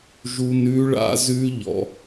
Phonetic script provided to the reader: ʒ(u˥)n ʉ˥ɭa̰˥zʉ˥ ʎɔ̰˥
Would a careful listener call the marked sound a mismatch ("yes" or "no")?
no